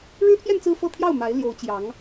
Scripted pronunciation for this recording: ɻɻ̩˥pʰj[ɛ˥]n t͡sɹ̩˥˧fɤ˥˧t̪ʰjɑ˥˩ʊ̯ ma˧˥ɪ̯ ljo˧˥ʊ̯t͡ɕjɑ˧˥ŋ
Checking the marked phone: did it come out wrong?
yes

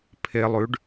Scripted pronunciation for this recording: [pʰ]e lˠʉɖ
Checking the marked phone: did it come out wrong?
no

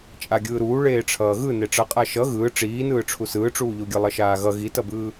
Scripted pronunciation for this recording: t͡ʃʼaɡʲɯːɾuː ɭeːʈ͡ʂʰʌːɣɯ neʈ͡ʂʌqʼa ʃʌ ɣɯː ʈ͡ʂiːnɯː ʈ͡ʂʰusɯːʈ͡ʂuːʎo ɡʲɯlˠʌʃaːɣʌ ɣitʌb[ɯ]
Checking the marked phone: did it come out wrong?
yes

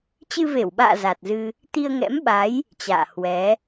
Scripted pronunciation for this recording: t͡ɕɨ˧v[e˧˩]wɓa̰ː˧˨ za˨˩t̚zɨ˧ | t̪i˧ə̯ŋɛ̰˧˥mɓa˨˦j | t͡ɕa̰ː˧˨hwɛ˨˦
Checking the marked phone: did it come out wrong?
no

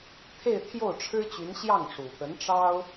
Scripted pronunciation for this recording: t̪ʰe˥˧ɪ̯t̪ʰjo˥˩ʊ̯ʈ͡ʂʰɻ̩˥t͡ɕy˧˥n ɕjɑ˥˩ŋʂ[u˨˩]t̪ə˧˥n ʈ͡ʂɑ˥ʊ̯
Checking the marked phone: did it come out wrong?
no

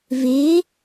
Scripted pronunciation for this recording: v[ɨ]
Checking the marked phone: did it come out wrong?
yes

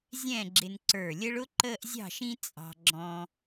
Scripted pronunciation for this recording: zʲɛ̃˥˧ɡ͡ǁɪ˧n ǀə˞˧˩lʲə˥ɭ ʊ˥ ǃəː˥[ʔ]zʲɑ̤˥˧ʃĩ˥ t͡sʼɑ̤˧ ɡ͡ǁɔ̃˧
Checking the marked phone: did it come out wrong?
no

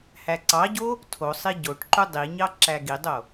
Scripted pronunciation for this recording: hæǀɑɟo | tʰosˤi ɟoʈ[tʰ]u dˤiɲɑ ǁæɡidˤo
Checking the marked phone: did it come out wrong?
yes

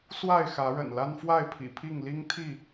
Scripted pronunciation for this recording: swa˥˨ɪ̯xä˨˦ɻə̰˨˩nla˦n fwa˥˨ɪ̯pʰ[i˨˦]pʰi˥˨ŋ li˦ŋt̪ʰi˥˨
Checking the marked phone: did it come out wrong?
yes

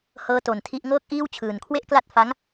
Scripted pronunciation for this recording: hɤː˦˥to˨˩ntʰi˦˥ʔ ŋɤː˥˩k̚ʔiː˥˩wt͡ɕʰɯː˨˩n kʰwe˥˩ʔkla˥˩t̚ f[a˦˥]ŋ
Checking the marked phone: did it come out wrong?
no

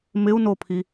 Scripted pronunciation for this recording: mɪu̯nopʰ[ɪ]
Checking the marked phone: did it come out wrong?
yes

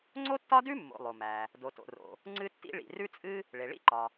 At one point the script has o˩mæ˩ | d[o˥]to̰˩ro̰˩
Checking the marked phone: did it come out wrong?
yes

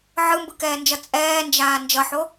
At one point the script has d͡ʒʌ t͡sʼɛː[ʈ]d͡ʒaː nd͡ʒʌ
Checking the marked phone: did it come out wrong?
yes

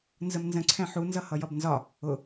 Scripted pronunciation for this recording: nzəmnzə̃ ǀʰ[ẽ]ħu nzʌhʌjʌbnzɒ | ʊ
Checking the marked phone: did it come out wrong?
yes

